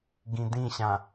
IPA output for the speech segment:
ɡĩdĩɕã

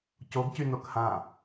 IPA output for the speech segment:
coɡcy nokhã

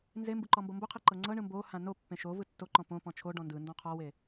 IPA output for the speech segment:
nzembɯ ǃɔmbɤmboqʰe ǃɤŋ͡ǀɤɳɯ mbohã nopːẽ ʃovɯ tːoǃɔ̃ põ pɔ̃t͡ʃʰoɖɔ̃ ndɯ ndɔ̃qʰɔwe

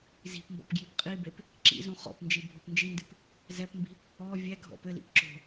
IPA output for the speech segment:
zi̤pmbɔ̰p ɡjipqʼibep | ǁḭzũ χɔ̰pnd͡ʒi bʱopnd͡ʒindɨp | zɛpmbi̤ | ɔ vʲɛ ɡʱɔ̰pɘlḭp ǁo̤

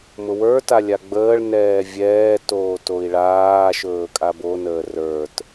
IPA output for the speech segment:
mʊwə˞ta lʲaɡ͡bəːɭnɛː vʲɛːtoː toi̯ɭaːʃɵː kʼabonəː rə˞t

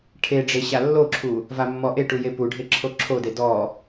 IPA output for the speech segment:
ʈʰe ɖ͡ʐeɕalːoǁʰu | vamːɔʔeʈu jepuɖʱe ǁʰoǁʰode dɔ

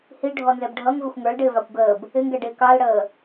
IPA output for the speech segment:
hiɖʱɔnzɛb ɖʱʌŋvɪxʷ ŋə˞lɖɪːvɑkʷ ɡəːb | ɪŋɡɛɖɪː kɑlɽəː

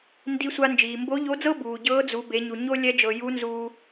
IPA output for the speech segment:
ndi˧sʷa˧ nd͡ʒiː˩mbo˧˥ʎo˧˥d͡zɤ˥ buː˩ ɟɤː˧˥d͡zu˩˧ be˩˧ɲu˩ ɲo˥ lʲɛ˧˥d͡ʒɤ˩ ju˧˥nzuː˧

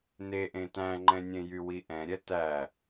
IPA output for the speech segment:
neʔẽ tæ̃ŋ͡ǃɛ̃nʲẽjy wiʔɛ̃ɾʲɛ tæ

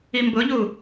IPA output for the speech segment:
imbʊʎu

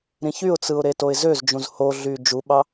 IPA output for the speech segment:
ɾĩçyʊ̯t͡sɯʊ̯ ɾetoɪ̯zøzd͡ʒũz hoɮy d͡ʒuɓɑ

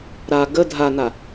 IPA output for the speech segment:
ɾa ɡə dʱana

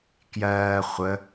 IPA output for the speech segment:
kjɜː χʷə

